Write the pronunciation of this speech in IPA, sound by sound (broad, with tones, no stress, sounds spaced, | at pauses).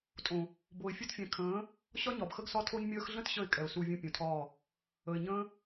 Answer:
tʼ õ˨ | b o˨ ɪ̯ fʲ u˧ t fʲ ɛ̃˨ kʰ ə̃ː˨˦ | ɕ ɒ˦ ɲ ɒ˨ b x ə˦ ɡ s ɒ˦ tʰ o˦ ɲ mʲ əː˦ x ɮ ə̃˦ t ɕ ə˦˨ ɪ̯ kʼ ɛ˨ ʊ̯ s u˧ vʲ ũ˧ pʲ ũ˨ tʰ ɒː˦˨ | ə˨ ɪ̯ ɲ ə̃ː˦